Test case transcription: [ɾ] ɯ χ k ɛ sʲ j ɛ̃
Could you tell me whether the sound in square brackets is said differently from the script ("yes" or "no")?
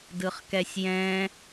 yes